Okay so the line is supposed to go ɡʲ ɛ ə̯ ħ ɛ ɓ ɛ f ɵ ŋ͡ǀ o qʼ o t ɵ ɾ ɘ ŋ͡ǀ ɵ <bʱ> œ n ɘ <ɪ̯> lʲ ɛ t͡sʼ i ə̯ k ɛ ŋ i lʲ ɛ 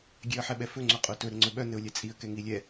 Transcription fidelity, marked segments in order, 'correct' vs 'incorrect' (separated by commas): incorrect, incorrect